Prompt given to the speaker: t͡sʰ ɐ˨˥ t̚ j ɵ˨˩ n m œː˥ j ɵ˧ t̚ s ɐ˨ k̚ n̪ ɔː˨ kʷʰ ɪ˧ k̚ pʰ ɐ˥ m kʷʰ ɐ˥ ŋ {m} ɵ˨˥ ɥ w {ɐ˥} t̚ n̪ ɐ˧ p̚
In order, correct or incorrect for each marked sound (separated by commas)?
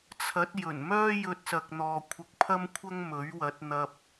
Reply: correct, incorrect